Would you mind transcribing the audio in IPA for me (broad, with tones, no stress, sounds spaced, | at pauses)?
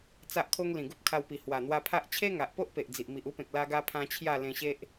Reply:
t͡s a˦ ʔ kʰ o˦ ŋ l ĩ˨˩ ɡ u˦ p̚ kʰ a˧ w p i˨˩ h w a˨˩ n̪ w a˧ pʰ a˦ ʔ t͡ɕʰ e˦ ŋ a˨ ʔ p o˦ ʔ p e˨ ʔ d͡z i˨ ʔ m i˨ ʔ u˦ p ẽ˨ k̚ l a˧ ɡ a˧ pʰ ã˧ t͡ɕʰ j a˥˧ l ẽ˧ ɕ e˦ ʔ